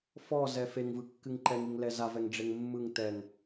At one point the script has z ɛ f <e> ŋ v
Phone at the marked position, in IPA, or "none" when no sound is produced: e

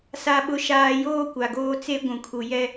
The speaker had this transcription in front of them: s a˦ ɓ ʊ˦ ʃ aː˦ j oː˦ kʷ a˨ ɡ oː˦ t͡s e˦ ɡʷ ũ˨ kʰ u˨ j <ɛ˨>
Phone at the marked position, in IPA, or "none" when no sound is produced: ɛ˦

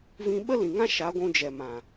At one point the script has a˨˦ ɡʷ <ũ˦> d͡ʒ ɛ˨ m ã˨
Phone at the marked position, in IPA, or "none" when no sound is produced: ũ˧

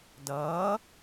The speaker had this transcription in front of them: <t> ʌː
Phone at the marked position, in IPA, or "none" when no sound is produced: d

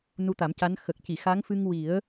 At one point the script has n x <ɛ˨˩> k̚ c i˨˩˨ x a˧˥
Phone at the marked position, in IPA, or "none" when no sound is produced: ə˨˩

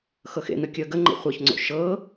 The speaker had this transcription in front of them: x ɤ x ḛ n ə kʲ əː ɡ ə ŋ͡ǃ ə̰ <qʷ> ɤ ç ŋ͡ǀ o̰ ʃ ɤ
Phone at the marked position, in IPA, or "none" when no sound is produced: χʷ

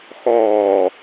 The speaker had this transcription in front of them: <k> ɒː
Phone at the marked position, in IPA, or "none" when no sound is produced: x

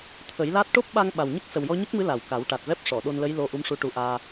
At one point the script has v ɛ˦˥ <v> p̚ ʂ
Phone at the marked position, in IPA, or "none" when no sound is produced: none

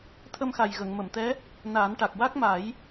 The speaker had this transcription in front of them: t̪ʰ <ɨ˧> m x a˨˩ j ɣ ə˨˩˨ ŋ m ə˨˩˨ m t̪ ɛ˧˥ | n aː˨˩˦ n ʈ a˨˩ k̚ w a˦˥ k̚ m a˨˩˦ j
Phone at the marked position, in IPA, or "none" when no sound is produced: ə˧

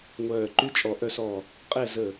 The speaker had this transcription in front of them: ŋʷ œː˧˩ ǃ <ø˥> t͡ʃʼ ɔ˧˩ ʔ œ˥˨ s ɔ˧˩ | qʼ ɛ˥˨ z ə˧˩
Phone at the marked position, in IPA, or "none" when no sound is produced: y˥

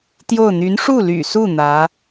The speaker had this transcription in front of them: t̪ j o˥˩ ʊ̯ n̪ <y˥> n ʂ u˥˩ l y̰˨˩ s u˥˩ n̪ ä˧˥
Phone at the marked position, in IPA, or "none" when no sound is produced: y˧˥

